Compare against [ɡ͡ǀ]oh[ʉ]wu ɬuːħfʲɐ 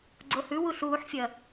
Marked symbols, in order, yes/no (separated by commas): yes, yes